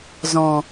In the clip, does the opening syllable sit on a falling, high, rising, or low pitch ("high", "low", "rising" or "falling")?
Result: low